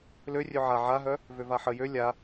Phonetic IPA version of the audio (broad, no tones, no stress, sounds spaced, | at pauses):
l ø rʲ ø ʕ a ʕ a ɦ œ | v ø v a ħ ə j ø lʲ a